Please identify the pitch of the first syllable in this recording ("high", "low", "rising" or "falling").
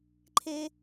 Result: high